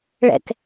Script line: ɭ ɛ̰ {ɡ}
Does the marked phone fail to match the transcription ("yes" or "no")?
yes